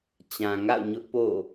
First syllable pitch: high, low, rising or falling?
low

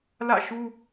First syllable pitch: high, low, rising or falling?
falling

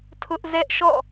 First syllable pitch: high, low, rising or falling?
high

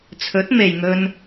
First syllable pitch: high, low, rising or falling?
rising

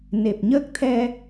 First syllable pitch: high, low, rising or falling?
low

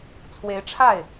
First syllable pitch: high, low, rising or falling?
rising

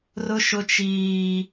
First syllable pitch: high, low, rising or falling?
high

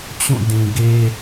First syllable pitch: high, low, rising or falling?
falling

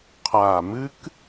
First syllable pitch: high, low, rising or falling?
low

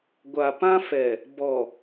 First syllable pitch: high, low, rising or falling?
low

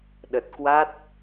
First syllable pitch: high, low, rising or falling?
low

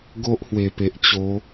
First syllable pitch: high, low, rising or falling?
high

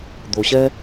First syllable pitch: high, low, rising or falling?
low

